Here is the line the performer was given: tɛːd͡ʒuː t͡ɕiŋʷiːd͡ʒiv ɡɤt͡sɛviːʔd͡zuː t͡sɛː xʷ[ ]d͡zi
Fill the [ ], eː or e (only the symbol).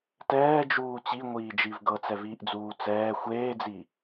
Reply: eː